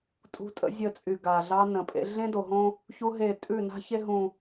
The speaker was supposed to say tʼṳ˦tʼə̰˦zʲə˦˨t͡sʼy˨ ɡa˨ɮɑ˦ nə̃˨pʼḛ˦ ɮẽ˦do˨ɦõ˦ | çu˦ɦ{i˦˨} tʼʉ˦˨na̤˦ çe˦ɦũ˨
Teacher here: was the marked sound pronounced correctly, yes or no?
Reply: no